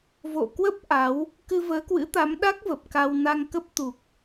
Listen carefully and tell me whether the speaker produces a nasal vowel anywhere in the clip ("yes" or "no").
no